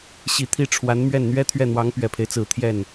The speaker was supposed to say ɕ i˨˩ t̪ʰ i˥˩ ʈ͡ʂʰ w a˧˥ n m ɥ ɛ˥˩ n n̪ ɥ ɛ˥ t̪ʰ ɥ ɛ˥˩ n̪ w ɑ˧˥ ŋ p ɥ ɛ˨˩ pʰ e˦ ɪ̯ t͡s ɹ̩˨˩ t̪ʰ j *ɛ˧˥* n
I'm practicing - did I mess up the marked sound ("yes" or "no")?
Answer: yes